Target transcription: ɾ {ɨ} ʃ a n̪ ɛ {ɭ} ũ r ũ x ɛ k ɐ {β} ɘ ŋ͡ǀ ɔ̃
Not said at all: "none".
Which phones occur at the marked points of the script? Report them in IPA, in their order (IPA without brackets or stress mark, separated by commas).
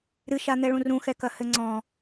ɨ, ɭ, h